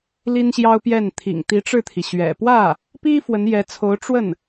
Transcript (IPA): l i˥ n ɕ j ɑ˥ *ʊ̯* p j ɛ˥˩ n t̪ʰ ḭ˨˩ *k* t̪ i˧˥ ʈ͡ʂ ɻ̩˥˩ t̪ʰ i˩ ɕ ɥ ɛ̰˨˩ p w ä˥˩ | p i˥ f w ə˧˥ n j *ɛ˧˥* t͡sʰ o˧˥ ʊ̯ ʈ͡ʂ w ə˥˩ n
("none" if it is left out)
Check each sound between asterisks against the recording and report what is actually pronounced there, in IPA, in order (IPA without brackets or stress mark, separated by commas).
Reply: ʊ̯, ŋ, ɛ˧˥